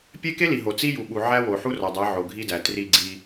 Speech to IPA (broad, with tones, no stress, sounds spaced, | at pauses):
pʲ e˦ k e˦ l i˨ ɦ o˨ t͡s i˦ j u˨ ɓ u˨ ʕ æ˦ w o˨ ħ u˦ r ɒ˨ dˤ æ˨˦ ʕ o˨ ɡʱ i˦ d æ˨ t r i˦˨ ɡ͡ǀ i˦